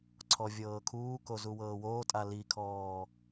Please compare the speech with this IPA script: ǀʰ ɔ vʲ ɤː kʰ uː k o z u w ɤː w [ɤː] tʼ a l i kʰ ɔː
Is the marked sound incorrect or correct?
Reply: incorrect